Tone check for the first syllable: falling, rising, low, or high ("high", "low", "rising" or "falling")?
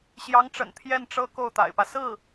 rising